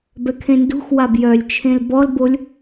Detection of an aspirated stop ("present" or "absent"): present